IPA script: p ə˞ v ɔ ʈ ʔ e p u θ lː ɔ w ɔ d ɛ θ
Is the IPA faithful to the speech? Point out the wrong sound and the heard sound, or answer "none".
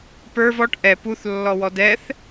e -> ɛ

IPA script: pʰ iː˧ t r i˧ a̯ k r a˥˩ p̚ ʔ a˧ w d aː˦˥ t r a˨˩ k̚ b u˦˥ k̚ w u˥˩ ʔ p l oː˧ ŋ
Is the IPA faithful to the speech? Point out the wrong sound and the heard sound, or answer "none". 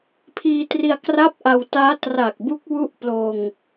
d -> t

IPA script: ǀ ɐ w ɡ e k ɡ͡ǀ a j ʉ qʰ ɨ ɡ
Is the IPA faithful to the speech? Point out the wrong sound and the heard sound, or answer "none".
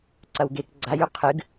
none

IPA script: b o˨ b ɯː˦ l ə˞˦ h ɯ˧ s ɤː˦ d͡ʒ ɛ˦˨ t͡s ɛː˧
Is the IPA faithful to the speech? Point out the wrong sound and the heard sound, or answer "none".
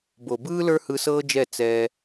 none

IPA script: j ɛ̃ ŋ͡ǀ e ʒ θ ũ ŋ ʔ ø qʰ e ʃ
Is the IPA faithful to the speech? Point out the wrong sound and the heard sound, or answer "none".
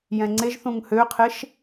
ʔ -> h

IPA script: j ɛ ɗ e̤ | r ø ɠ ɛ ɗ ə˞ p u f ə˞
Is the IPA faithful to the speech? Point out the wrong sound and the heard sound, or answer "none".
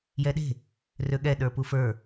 none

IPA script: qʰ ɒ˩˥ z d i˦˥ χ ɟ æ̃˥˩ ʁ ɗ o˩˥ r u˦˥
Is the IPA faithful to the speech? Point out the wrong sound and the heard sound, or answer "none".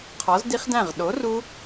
ɟ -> d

